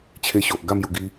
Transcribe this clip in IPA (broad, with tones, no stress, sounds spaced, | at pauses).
t͡ɕʰ e˧ ɕ o˨ ʔ ɡ a˥˧ m j u˨˩ ɡ i˧